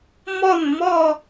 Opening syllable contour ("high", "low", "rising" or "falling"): falling